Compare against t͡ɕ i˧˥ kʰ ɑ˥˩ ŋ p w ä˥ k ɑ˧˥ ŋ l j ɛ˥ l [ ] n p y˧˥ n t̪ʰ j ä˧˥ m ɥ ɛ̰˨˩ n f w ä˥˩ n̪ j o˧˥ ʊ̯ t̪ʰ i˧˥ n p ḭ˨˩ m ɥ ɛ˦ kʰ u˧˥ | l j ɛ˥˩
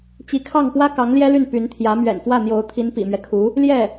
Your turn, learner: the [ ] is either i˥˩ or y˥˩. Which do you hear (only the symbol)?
y˥˩